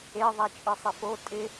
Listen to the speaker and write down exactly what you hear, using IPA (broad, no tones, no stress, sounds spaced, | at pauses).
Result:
e ðˤ a t͡ʃʼ ɨ sˤ ɪ f o tʼ ɪ